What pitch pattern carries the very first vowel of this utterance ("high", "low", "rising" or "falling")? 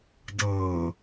low